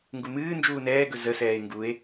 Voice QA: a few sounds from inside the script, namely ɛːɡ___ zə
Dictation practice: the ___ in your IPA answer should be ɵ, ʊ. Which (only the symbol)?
ɵ